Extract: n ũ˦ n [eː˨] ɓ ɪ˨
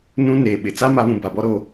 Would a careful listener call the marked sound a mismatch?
no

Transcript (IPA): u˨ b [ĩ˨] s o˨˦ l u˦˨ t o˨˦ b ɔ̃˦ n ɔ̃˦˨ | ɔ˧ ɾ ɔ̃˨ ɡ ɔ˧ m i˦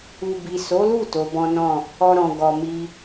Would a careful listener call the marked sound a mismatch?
yes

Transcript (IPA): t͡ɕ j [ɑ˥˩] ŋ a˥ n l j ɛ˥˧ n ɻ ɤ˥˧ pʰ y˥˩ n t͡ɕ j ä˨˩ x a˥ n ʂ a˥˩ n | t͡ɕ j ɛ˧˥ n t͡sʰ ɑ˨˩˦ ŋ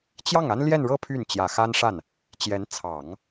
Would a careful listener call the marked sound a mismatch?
no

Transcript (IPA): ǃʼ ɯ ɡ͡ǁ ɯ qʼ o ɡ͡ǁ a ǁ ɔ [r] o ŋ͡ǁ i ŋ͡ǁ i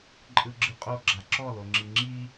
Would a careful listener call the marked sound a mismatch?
yes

